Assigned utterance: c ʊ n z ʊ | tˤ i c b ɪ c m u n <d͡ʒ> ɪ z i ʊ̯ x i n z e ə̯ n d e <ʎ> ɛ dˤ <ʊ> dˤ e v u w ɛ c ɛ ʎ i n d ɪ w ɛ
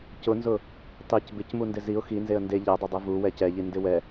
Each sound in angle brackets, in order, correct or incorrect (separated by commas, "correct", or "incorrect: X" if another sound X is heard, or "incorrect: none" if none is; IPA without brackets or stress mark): incorrect: d, correct, correct